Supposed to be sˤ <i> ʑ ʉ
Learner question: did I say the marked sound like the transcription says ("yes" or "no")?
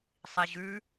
yes